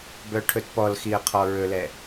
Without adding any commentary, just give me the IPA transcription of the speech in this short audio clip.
b œ ʈʰ ɵ t p ɔ l x i ə̯ qʰ ɔ ɹ ɵ l ɛ

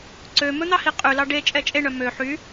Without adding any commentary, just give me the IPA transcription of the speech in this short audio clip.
ǀ ø m ɵ n̪ ɑ h i qʼ ʉ l ɑ ɖ e t͡ʃʼ ɛ t͡ʃʼ e ɳ œ m ø ħ y

